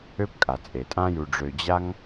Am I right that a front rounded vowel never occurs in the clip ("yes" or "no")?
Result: no